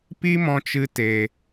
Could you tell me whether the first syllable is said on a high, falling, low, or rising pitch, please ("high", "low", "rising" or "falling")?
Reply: high